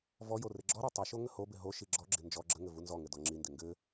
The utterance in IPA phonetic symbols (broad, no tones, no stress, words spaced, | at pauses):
vɔ jorɪɡ͡ǁɔɾo tˤiʃo ŋəhobɪ ɦo ʃiɡ͡ǁɔɡ͡ǁɪ nd͡ʒɔ ɡ͡ǁəŋɘ vunzɔŋɘ dɔŋ͡ǁindɪ ŋɡɘ